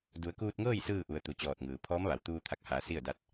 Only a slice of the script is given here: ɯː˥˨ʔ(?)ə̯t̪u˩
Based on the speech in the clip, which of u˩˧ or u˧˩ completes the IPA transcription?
u˩˧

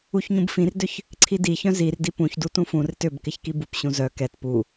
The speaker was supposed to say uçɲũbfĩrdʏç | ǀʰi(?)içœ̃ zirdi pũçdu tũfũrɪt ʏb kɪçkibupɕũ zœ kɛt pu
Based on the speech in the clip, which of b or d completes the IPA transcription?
d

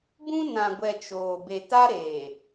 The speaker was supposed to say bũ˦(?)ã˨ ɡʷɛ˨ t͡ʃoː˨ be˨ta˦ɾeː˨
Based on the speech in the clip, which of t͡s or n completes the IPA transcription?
n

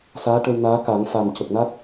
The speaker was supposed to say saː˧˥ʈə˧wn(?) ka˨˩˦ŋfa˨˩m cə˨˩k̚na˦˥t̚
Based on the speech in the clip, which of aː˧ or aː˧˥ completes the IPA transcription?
aː˧˥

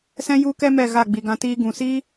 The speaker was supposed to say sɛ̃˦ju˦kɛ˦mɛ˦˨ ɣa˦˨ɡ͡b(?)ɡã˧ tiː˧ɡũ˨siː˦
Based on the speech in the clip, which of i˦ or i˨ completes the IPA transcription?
i˨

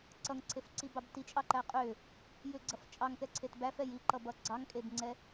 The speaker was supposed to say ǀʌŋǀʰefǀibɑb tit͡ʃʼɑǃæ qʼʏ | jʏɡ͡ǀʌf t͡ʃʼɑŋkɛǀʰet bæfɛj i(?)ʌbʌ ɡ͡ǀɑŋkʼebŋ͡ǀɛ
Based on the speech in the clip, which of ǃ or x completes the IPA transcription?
ǃ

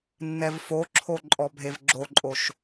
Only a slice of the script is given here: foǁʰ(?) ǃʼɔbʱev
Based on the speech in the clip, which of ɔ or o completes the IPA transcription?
o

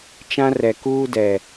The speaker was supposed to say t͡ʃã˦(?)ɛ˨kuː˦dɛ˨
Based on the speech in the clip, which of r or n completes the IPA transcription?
r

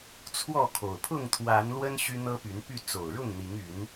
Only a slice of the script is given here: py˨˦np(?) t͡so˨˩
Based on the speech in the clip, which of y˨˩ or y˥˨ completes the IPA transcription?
y˥˨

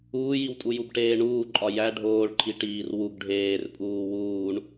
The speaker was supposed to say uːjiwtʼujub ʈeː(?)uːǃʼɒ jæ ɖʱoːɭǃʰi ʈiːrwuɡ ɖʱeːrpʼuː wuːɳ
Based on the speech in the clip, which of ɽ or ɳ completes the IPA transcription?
ɳ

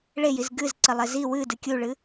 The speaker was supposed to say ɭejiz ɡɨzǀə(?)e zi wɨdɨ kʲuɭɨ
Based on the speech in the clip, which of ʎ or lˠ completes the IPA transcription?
lˠ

